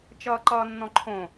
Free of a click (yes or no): no